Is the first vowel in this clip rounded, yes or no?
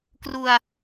yes